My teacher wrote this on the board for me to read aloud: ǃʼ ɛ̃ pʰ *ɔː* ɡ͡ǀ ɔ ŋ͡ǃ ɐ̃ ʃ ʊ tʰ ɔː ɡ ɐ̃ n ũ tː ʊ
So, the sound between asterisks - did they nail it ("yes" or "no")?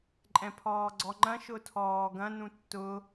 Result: yes